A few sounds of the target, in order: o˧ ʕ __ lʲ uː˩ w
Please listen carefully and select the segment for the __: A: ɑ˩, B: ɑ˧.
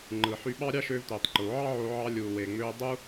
B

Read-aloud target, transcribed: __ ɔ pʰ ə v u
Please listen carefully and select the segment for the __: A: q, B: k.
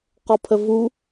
A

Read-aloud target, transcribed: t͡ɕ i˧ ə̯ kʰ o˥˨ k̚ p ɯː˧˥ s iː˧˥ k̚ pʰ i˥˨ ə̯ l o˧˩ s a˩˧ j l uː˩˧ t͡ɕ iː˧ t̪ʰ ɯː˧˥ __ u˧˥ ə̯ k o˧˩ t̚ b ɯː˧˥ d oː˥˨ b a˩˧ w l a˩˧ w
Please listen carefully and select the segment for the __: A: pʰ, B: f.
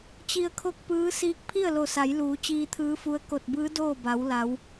B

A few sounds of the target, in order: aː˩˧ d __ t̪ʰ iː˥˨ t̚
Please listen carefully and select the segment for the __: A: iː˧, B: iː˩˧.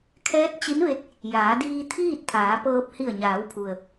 A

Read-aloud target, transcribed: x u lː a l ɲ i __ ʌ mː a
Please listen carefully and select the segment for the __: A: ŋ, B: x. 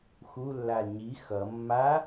B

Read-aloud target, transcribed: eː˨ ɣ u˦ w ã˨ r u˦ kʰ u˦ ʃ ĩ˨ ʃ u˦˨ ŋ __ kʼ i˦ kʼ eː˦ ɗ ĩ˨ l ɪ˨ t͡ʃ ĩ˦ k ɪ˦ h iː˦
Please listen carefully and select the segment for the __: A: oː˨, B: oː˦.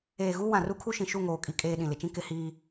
A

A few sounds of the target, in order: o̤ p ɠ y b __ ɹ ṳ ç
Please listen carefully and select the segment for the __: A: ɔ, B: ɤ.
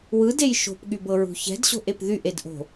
B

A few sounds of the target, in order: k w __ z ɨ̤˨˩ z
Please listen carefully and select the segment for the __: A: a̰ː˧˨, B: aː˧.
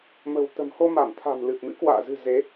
A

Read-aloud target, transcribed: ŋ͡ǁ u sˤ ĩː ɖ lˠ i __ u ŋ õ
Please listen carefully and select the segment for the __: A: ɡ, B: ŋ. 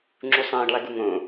A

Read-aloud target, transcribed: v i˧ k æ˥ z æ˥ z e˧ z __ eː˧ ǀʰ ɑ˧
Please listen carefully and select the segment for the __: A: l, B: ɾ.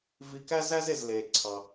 A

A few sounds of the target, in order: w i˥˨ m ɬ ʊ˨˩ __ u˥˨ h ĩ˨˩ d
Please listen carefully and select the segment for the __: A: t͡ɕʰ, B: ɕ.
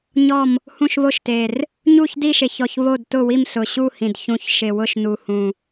B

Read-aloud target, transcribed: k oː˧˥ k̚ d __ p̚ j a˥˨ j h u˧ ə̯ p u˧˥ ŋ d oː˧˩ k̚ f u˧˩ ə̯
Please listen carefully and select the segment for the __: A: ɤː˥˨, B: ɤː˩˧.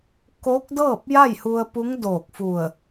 A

